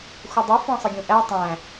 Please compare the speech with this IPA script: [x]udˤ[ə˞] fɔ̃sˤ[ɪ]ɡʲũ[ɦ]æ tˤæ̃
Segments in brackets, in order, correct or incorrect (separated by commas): correct, correct, correct, incorrect